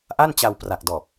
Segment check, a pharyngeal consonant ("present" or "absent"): absent